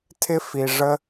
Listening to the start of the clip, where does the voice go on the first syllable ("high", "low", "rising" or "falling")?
high